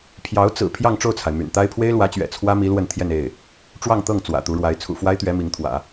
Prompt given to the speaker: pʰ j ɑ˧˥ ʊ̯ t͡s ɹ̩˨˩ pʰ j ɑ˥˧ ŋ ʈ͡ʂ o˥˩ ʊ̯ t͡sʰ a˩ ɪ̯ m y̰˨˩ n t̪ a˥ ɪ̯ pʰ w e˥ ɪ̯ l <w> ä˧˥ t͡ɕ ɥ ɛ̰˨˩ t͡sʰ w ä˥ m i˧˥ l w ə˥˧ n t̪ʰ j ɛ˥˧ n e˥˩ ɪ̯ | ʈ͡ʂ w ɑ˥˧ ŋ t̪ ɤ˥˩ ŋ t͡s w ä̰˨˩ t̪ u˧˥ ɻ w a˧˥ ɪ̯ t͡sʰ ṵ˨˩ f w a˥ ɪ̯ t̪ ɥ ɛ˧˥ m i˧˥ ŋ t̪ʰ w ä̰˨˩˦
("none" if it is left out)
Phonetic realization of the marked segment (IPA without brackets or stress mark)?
w